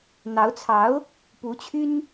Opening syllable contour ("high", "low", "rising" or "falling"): rising